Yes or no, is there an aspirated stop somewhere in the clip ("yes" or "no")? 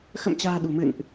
no